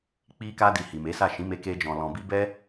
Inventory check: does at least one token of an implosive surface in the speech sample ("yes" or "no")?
no